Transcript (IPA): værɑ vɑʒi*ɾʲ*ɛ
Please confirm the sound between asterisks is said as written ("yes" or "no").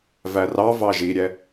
yes